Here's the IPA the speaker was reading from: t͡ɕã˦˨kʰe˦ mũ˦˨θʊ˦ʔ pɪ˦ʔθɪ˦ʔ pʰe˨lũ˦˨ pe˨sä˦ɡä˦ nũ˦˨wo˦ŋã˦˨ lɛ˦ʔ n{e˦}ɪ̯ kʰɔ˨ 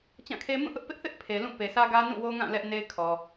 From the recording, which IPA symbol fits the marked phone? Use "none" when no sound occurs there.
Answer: e˦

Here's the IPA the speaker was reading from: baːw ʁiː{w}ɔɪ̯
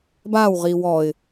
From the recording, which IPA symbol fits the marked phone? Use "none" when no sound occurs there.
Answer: w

